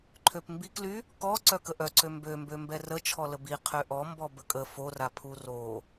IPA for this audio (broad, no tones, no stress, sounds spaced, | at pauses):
ǃʰ ø p m b i k l y | k ɔ ǀ œ k ə ʔ œ ǀ ø m b ø m b ø m b ɛ r ə t͡ʃʰ ɔ l ə b i qʰ ø ʔ ɔ m b ɔ b ə kʼ ə f o r a pʰ u r o